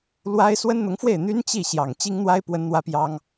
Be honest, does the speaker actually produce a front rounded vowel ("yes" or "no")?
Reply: yes